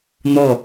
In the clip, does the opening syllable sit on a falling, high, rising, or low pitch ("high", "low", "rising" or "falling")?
falling